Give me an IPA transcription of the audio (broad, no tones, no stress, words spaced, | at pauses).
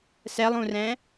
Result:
sɛlˠũrɛ̃